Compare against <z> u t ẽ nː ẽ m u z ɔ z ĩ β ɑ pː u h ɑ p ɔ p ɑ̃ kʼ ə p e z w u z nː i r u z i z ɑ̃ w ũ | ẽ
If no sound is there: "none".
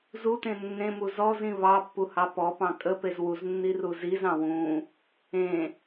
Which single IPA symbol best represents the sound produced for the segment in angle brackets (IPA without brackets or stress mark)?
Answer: z